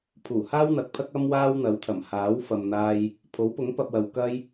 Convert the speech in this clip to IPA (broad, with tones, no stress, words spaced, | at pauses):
pʰuː˨˩haː˥wn̪ɐ˨k̚pʰɐ˥k̚ ɐ˥mwaː˥wn̪ɐ˨˥w t̪ʰɐ˨˩mhaː˨˥w fɐ˨mn̪aː˧j | pʰo˨˥wpʊ˨˥ŋ pɐ˧p̚wɐ˨w kɐ˧j